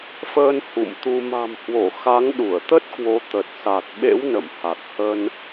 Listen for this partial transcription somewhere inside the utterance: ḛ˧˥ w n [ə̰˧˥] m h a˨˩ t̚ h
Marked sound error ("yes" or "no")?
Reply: yes